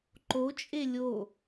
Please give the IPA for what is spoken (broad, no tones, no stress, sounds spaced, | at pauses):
ǃ o t͡ʃʼ e lʲ o